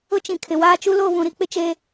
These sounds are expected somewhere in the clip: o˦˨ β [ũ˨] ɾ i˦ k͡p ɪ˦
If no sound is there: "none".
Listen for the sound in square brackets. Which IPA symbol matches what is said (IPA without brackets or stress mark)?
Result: ũ˨